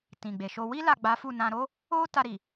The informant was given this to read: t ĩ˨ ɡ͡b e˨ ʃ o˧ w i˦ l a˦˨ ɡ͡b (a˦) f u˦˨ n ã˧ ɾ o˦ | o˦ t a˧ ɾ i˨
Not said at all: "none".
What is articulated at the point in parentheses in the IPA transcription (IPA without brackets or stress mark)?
a˨˦